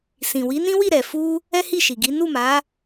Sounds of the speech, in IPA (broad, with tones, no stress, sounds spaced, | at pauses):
s ĩ˨ w i˨˦ n ĩ˦ w i˦˨ ɾ ɛ˨ f u˧ | ɛ˦ h i˦˨ ʃ i˨ ɡ i˨˦ n u˦˨ m a˨˦